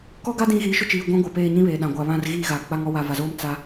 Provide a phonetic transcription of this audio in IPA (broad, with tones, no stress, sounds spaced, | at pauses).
k ɔ˦ ɡ a˦ d ĩ˦ ɣ iː˨˦ ʃ ʊ˦ t͡ʃ iː˨ ɡʷ ã˦ ɡʷ a˨ p eː˦˨ ɲ ĩ˦ β eː˨ ɗ ã˨ ɡʷ a˨ β ã˦˨ r ɣ iː˦˨ ɣ a˨ k͡p a˦ ŋ ɔ˦ w a˨ v a˨ z oː˦ m t͡s a˦